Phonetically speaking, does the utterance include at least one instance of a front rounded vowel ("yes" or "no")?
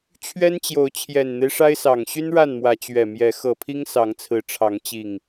yes